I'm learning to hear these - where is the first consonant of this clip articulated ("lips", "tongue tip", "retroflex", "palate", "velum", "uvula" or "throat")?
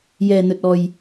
palate